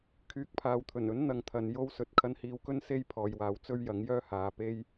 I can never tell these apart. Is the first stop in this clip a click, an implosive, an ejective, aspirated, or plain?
aspirated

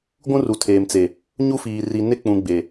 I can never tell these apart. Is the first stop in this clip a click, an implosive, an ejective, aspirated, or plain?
plain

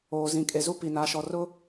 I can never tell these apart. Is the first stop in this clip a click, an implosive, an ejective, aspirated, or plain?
ejective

